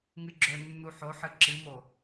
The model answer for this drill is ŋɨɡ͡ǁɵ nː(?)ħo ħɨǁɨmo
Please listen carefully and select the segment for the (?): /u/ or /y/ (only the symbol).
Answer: u